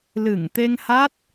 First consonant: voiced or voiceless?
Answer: voiced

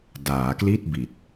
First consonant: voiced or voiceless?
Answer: voiced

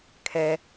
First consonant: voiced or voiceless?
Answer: voiceless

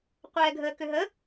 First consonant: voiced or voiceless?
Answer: voiceless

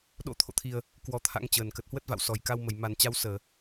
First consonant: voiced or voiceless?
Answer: voiced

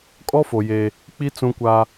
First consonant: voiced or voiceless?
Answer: voiceless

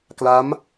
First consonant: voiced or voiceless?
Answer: voiceless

